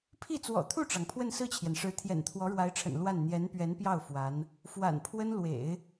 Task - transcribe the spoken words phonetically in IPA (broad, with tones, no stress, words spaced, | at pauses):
pʰi˥˩t͡swɔ̰˨˩t̪ʰu˥˩ʈ͡ʂɑ˩ŋ pʰwə˥˧nsɹ̩˥˩t͡ɕʰjɛ˩nʂɻ̩˧˥ t̪ʰjɛ̰˨˩nt̪ʰwɔ˧˥ɻwa˧˥ɪ̯ʈ͡ʂʰə̰˨˩n lwa˥˩n n̪jɛ˧˥npɥɛ˧˥npjɑ˥˩ʊ̯ fwa˧˥n | fwa̰˨˩npʰwə˥nlwḛ˨˩˦ɪ̯